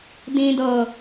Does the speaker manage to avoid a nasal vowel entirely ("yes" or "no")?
no